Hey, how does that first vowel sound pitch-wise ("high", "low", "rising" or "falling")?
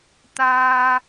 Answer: high